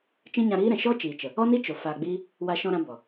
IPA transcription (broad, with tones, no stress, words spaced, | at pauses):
t͡ʃĩ˦ɲã˧ɾiː˦ɾɛ̃˨ ʃɔ˦t͡ʃiː˨t͡ʃə˨ | ɔ˦ni˦ t͡ʃo˨ faː˧ɡ͡biː˦ | wa˧ʃɔ̃˧ɾã˧ bɔ˨